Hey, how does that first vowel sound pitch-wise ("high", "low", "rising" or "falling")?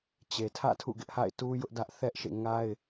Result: low